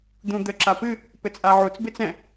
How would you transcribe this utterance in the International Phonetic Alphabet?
d̪ũ d̪ə ǁapɨ | pɘt͡sʼaʕut͡s bɪt͡sɛ̃

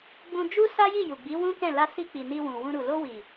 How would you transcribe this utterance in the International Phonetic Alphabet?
ɡ͡bũ˧d͡ʒu˦ sa˦ji˦˨ ju˨ɡ͡bi˨˦ wũ˦kɛ̃˦˨ la˧si˧k͡pi˨ ni˧wũ˨wũ˧ɾu˨ lo˧wi˨

